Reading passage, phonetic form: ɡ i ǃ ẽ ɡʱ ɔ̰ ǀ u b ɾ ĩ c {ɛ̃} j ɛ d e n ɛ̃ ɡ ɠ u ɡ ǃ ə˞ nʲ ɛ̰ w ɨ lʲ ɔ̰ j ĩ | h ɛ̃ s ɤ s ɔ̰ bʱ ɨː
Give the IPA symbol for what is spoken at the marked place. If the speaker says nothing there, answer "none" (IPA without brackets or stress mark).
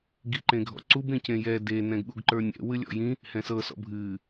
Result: ẽ